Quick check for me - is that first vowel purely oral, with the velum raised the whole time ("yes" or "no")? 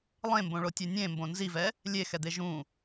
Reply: no